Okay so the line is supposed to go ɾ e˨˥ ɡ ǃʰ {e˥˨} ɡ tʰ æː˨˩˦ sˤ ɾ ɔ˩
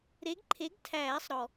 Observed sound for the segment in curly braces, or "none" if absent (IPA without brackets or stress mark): e˨˥